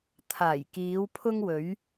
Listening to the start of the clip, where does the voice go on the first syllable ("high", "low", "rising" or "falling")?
low